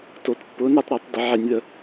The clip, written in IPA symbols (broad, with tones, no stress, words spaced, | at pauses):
to˧˩˧tpːʊː˨˥n ɾɛ˨˥tˤɾɛ˧˩˧tˤ də˧˩˧ʕɛ˧˩˧nʲðə˧˩˧